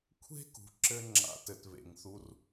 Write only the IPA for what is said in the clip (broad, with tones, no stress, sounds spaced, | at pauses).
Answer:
kʷʰ e̤˦ k ṳ˨ ǁ ɘ˧ ŋ͡ǁ a̰˧ t ɘ˨ t β ḛ˨ ŋ θ u˧ r